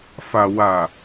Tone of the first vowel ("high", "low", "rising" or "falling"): low